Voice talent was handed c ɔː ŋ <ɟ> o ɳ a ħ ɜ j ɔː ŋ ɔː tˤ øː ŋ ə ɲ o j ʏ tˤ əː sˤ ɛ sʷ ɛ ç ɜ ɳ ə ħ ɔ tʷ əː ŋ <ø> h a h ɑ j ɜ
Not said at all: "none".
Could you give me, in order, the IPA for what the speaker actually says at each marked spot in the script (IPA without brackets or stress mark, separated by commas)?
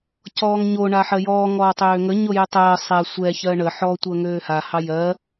ɲ, øː